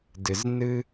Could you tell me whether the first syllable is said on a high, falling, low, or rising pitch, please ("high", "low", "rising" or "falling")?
low